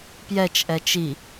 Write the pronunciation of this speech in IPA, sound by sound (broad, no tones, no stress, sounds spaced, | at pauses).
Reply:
p j ɛ t͡ʃ ʔ ɛ t͡ʃ i